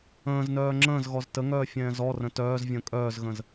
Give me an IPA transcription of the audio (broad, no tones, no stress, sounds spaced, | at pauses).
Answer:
ə̃ː z n œː ŋ͡ǁ ə̃ː z ɣ ɔ z t ə ŋ œː fʲ ɛ̃ː z ɔ r ə̃ t œː z vʲ ə̃ː kʼ œː z ɣ ə̃ z